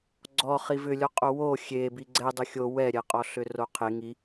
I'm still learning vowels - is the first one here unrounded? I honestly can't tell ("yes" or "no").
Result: no